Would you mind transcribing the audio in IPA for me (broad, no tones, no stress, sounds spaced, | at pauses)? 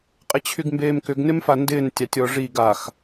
qʼ ɪ t͡ɕʰ y ɡ m b eː m k ʏ ɡ n ɪ m f a n d ɪː n tʲ ɑ tʲ ɔ ʐ i ɡ a x